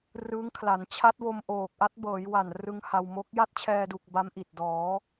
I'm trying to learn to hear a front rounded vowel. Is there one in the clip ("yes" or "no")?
no